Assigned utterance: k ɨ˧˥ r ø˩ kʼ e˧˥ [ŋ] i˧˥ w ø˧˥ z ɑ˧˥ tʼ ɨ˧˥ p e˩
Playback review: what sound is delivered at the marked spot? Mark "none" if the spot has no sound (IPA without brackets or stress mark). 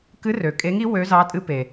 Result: ŋ